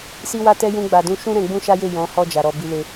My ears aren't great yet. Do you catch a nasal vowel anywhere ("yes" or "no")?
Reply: yes